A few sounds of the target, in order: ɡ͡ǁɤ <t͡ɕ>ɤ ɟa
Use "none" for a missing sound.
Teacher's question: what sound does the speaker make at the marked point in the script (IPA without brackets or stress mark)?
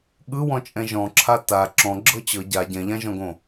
t͡ɕ